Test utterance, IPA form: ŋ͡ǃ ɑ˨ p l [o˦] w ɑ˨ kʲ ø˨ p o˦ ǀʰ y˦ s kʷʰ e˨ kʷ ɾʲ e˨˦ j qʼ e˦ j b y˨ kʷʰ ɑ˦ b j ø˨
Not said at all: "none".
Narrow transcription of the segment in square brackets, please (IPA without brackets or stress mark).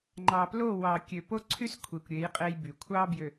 o˦˨